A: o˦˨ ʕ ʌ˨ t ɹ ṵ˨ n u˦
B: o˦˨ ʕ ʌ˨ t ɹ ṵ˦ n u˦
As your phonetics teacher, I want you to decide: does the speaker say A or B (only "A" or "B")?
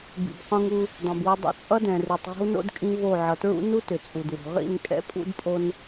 B